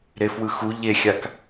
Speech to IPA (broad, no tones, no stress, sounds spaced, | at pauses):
ɾ e f w ɯ x u ʎ e xʲ a k